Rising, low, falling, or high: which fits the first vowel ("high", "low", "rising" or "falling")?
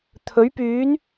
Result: rising